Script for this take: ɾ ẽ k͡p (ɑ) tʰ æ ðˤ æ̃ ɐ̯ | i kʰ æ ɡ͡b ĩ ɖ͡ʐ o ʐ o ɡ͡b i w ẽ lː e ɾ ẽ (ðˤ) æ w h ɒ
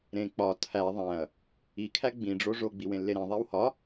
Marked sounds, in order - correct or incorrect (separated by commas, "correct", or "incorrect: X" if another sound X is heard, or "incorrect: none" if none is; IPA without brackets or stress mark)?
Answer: incorrect: ɒ, correct